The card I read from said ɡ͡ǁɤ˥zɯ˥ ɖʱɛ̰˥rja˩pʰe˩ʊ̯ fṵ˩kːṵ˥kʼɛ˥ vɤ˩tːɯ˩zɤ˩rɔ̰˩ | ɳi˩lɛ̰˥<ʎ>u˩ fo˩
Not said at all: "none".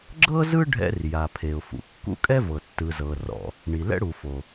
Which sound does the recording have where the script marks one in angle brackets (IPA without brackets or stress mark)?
ɽ